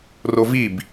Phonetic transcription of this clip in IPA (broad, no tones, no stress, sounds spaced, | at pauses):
r o v i b